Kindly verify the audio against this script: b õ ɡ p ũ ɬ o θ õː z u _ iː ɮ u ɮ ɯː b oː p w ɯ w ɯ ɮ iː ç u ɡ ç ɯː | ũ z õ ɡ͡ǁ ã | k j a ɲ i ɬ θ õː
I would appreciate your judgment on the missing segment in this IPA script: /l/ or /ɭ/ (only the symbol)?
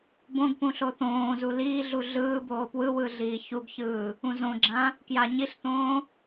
l